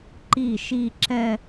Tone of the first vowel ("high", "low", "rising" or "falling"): falling